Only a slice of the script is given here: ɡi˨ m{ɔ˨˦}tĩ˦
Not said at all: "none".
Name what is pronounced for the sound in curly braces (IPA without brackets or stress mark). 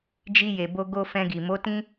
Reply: o˨˦